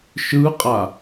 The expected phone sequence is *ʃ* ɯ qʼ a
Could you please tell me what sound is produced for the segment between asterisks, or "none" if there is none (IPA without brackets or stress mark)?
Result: ʃ